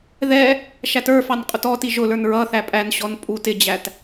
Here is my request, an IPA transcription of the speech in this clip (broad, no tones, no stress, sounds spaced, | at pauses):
ð ɛ | ʃ æ t ə˞ f ɑ n qʼ ʊ t ɔ t i ʒ ʊ l ə˞ n ɹ ʌ θ æ pʼ æ n ɕ ɔ n pʼ u t ɪ d͡ʑ æ t